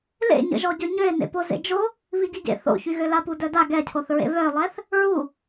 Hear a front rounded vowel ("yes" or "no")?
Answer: yes